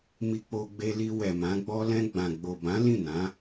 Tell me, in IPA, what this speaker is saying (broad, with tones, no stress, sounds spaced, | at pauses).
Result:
m i˧ k͡p o˧ ɡ͡b e˧ l i˧ w ɛ˨ m ã˨˦ ɡ͡b ɔ˧ l ɛ̃˧ ɡ͡b ã˨ ɡ͡b o˨ b ã˨˦ l ĩ˦˨ n ã˨˦